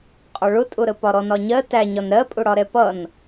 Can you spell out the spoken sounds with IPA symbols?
qʼɒɭʊtʼʊɾə pɒɾɔnɒɲɜ tæɲɒn ɾɜpʼʊɽɒɾɛ pʌn

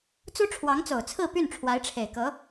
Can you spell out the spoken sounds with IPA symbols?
t͡su˥ʈ͡ʂʰwɑ˧˥ŋt͡so˨˩ʊ̯t͡sʰɹ̩˥˧ py˥˩nʈ͡ʂʰwa˧˥ɪ̯ʈ͡ʂʰe˨˩ɪ̯kɤ˧˥

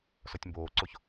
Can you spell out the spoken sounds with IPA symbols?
sɔtʲmboːǀoç

